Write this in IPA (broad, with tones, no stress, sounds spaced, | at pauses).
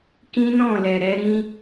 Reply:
k ĩ˦ n ɔ̃˦˨ l ɛ˨ ɾ ɛ˨˦ ɾ ĩ˧